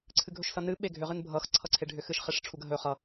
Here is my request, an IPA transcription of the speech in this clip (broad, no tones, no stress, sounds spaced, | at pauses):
ǀʰ ɨ ɡʱ ɵ ʃ s ʌ n ɨ ɓ e ɡʱ ʏ ʁ ɨ n bʱ ʌ x ǀʰ ʌ ǀʰ e ɖʱ ʏ x ɨ ʃ χ e ʂ ʈ͡ʂʰ u ɡ ə ɦ ɵ χ ʌ